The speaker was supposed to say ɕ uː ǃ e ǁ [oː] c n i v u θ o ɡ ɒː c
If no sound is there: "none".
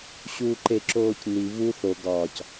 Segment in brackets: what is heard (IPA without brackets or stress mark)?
oː